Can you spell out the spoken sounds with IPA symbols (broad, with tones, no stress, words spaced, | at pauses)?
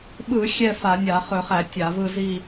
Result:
ɓɯ˧˩˧ xʲɛ˥˧fa˧˩˧nʲa˧˩˧ χɵ˧˩˧χæ˧˩˧ tʲa˧˩˧vɯ˥˧zi˥˧